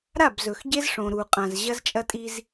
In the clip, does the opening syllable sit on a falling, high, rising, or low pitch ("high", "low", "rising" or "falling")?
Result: falling